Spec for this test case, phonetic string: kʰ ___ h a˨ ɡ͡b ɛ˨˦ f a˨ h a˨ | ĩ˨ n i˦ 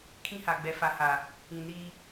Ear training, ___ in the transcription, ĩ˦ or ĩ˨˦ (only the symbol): ĩ˦